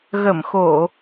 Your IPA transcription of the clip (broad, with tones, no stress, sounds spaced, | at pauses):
ɣ ə˧˩ m x o˧˩˨